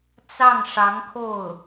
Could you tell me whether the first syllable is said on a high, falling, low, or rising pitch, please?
falling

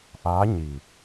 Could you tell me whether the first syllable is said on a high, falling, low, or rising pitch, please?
rising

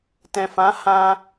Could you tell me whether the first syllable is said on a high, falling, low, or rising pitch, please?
low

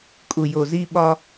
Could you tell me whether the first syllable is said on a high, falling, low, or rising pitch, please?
low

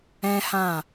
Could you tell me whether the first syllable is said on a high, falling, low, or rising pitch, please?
high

